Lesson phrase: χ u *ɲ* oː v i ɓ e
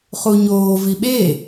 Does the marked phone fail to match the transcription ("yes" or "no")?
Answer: no